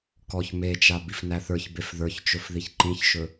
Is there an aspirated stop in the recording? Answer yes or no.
no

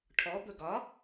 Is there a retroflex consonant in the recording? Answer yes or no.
yes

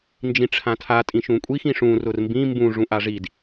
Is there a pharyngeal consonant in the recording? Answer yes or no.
no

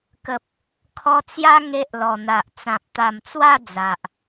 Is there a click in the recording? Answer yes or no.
no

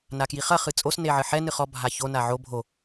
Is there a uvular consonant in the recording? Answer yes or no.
yes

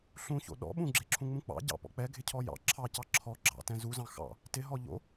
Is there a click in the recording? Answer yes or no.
yes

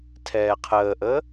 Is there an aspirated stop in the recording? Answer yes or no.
yes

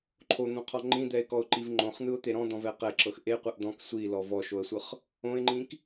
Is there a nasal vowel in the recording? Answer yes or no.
yes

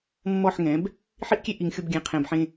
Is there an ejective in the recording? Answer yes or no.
no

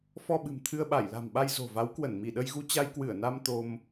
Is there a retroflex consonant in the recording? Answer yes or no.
no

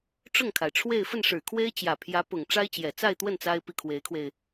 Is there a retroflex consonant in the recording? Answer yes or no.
yes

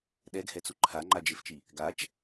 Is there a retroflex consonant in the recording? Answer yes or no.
no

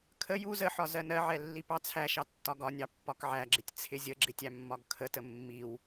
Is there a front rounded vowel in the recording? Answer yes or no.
no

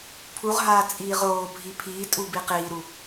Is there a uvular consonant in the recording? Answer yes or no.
yes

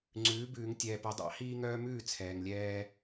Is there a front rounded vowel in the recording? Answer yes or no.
yes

